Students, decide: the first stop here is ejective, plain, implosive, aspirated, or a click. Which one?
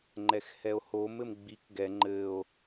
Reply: click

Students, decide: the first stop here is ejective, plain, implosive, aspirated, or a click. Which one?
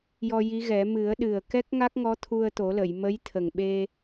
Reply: implosive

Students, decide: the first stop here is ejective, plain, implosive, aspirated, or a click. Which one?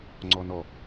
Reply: click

